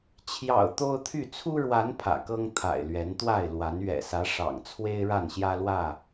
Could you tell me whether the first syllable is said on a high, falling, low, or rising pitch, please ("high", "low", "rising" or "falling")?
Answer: low